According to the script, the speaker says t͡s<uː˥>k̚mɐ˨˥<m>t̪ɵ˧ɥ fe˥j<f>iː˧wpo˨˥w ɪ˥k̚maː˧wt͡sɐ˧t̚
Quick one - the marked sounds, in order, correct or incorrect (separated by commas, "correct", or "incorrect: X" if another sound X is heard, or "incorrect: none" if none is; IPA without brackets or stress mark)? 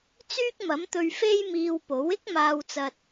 incorrect: yː˥, correct, incorrect: m